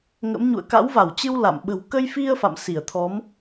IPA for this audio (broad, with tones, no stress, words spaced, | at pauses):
ŋə̰˧˥mɲṵ˧˨ə̯ ka̰˧˥wva˧˩wt͡ɕɨ˧w la̰˧˨m ɓə̤˨˩wkə˧jfi˧ə̯ fa̰˧˨msi˧˩ə̯t̪ʰɔ˨˦m